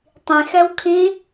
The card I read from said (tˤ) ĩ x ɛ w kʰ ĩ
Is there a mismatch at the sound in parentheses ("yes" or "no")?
no